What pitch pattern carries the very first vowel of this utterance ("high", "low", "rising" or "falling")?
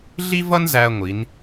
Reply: high